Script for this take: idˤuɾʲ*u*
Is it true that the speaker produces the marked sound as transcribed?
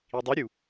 yes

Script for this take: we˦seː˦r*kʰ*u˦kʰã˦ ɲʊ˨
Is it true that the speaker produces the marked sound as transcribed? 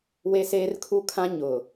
yes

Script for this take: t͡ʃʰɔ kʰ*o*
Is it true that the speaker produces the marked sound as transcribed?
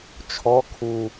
no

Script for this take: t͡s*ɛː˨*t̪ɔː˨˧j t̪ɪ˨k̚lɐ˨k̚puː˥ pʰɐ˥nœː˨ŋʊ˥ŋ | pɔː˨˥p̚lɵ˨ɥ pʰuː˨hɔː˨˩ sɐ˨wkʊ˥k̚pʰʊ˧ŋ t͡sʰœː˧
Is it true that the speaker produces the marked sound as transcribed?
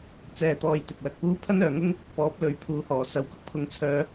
yes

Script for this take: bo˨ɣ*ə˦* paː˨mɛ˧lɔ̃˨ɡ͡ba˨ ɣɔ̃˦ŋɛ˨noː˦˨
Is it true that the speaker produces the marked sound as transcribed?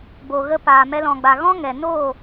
no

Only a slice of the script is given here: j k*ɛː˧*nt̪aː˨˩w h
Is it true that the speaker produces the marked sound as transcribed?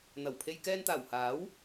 yes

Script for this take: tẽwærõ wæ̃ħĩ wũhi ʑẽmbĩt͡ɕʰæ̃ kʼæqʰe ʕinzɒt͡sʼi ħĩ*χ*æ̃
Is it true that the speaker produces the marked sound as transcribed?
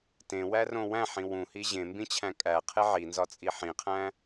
no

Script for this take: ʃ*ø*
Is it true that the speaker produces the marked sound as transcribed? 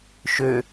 yes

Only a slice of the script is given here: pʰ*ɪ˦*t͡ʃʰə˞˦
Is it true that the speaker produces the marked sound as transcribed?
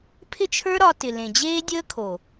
yes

